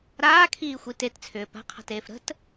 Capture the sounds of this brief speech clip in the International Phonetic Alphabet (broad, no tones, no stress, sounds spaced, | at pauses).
ɾ aː kʰ iː xʷ i t e t t͡sʰ ʏː p a̤ qʰ a̤ t eː f ɾ ə̤ t